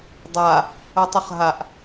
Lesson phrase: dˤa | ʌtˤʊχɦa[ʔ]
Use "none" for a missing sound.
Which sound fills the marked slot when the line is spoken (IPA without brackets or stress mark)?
ʔ